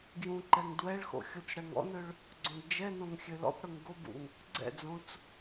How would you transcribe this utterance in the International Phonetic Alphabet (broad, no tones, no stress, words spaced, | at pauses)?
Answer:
ɡjũǃɛŋ dwɛɭxo̰ xʲut͡sɽɛŋɔ̰nøɭ | ɡ͡ǀõdd͡ʒɛnõŋ xʲølɔ̰pɽəŋ ɡobṵŋ | ɡ͡ǀɛ̰d͡zõt͡s